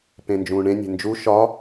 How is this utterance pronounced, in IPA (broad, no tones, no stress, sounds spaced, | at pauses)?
p ẽ n d͡ʒ ũː ɳ ẽ nʲ e̤ n d͡ʒ u ʃ ɒ